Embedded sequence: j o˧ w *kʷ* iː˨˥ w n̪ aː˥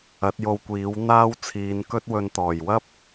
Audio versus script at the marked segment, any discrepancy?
no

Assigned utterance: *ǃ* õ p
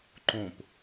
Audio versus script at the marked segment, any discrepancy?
no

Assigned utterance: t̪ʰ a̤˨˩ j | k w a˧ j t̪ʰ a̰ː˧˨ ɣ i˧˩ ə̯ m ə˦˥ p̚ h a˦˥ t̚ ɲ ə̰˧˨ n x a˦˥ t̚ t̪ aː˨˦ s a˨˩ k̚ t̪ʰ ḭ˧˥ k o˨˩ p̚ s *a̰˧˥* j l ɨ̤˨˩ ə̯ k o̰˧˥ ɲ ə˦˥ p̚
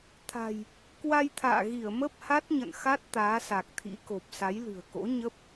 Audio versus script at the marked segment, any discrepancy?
yes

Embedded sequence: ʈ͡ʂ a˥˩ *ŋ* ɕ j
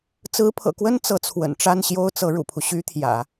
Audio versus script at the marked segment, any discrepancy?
yes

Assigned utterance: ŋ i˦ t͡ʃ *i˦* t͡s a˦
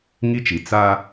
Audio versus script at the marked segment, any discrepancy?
yes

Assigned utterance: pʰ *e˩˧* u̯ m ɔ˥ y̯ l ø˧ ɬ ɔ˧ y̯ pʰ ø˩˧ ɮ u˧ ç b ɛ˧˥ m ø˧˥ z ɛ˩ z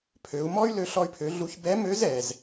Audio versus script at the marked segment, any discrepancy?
yes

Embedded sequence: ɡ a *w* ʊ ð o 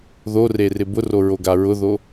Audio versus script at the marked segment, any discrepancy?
yes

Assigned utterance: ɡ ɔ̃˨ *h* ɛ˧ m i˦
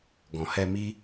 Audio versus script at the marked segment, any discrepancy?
no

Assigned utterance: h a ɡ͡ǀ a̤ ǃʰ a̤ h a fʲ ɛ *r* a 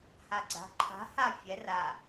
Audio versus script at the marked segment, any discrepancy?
no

